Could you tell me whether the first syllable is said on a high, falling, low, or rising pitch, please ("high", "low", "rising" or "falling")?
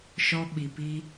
high